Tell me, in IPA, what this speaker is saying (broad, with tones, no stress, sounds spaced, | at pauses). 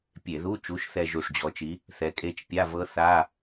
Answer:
pʲ e˧˩˧ ð u˧˥˧ t͡ʃ u˨˥ ʃ θ ɛ˧ ʒ u˧˩ ʂ d͡ʑ ɔ˨˥ t͡ʃ i˨˥ | θ ɛ˨˥ kʼ e˦˥ t͡ʃ pʲ a˧˥˧ v ɤ˦˥ θ a˧˥˧